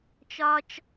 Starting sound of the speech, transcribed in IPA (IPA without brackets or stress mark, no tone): t͡ʃ